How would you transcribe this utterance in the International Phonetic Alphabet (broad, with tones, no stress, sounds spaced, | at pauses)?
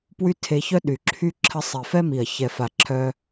p w y˦ tʰ e˧ ç œ˦ ɗ y˨ ǁʰ y˦ ǁʰ ə˧ sˤ i˨ f ɛ˦ m i˨ ɐ̯ ç ɛ˨ f a˨ ǁʰ œ˧